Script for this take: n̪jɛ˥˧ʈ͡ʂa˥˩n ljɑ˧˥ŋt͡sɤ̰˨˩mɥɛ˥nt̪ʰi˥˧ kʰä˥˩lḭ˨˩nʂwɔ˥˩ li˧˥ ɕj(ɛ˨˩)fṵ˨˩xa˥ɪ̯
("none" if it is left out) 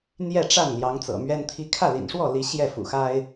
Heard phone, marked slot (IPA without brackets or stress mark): ɛ˥˩